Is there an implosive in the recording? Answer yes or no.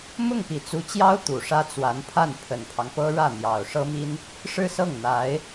no